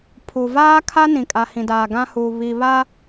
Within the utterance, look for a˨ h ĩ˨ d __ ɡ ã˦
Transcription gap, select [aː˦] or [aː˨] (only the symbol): aː˨